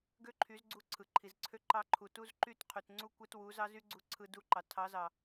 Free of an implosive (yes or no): yes